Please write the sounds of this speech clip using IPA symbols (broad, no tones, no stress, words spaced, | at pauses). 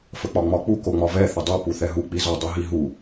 fək͡pɒŋ͡mɒk͡pu koŋ͡mɒvɛ θədˤo puθɛɦu k͡pizɒ dˤuɦiɦu